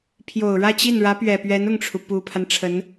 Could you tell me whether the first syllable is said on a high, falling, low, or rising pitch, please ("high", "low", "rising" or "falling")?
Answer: low